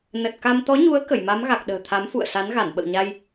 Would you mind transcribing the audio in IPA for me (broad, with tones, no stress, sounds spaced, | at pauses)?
n ə˨˩ t̚ k a˧ m t̪ ɔ˨˦ ɲ u˨˦ ə̯ k ə˧˩ j m a˨˦ m ɣ a˨˩ k̚ ɗ ə̤ː˨˩ t̪ʰ a˨˦ m f ṵ˧˨ ə̯ s a˨˦ n ɣ a˧˩ n ɓ ə̰˧˨ w ɲ a˧ j